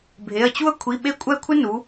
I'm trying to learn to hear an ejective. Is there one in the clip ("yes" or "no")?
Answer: yes